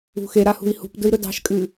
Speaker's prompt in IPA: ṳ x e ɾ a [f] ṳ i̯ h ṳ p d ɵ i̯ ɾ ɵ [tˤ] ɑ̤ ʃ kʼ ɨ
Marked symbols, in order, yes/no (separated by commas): no, no